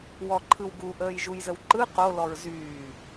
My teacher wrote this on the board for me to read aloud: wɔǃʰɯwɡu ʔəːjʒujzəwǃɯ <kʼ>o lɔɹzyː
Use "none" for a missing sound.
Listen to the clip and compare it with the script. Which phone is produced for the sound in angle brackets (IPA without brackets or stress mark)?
q